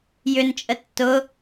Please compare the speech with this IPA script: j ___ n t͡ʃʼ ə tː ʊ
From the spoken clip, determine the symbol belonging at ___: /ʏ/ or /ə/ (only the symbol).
ʏ